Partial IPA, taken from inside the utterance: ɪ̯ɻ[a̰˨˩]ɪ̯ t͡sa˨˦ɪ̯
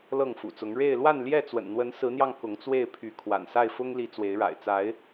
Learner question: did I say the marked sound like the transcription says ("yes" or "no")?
yes